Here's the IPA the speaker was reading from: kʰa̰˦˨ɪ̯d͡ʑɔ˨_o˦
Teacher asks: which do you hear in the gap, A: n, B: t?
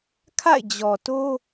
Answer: B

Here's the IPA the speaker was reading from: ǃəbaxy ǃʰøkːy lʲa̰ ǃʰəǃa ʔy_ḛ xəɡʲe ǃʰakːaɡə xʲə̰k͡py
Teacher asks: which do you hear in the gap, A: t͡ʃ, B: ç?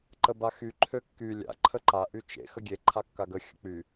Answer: A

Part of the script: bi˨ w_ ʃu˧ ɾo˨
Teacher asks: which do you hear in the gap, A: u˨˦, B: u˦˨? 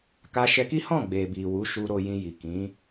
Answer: A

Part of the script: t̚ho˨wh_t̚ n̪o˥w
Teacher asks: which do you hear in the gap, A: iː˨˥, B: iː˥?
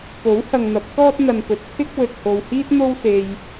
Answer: B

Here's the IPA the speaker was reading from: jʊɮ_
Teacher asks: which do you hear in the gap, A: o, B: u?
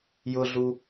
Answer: B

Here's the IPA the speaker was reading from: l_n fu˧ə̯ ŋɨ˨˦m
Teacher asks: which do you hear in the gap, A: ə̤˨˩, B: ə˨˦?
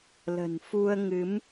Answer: A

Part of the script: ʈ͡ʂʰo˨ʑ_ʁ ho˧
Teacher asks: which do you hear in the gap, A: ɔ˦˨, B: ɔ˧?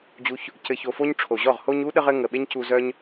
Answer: A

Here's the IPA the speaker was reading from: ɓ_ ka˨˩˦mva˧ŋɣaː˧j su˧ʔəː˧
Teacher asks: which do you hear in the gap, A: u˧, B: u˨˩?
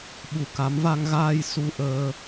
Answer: B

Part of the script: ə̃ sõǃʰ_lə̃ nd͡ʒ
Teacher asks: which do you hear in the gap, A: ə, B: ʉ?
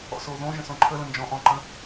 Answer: A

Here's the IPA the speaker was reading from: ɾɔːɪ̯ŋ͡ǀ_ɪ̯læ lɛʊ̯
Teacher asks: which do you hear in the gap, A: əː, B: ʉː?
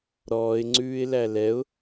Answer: B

